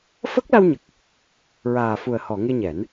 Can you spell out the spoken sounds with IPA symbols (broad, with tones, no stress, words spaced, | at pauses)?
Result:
fə˦˥k̚la˧wɲə˨˩k̚ | ɹaː˨˩fu˨˩ə̯hɔ˨˩˨ ŋe˧ɲɛ˨˩˦n